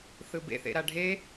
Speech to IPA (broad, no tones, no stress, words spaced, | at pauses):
θɯbḛ θḛɾaɖʱe